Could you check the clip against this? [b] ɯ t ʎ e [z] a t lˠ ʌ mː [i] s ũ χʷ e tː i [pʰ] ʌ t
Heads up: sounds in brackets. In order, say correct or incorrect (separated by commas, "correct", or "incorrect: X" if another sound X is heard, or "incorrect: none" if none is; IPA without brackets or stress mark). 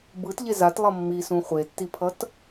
correct, correct, correct, correct